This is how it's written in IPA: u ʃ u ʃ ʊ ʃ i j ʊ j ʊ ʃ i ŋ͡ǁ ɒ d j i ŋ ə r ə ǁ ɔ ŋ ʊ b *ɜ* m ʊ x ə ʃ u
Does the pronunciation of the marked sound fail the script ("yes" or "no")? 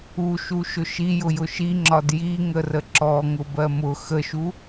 no